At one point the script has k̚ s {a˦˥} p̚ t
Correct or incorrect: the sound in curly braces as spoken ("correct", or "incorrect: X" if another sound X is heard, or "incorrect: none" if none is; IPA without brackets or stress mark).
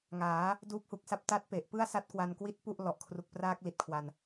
correct